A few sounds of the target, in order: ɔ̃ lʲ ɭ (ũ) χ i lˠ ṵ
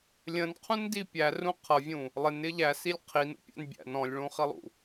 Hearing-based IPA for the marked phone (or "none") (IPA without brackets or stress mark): ũ